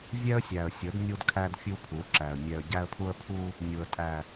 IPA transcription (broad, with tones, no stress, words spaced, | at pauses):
vʲɛ˦ə̯sʲæ˨ə̯sʲə˨˦d nʲu˦dkʰæ˦d fʲu˦pʰu˨˦ǁæ˨ə̯ mʲɛ˨ə̯ɟæ˦ə̯pʰu˦ə̯pʰu˦ | nʲu˨ə̯tʼæ˨